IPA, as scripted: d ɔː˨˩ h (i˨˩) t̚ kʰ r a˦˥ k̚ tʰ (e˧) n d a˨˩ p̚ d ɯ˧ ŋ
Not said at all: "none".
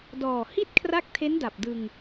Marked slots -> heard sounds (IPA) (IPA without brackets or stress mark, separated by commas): i˥˩, e˦˥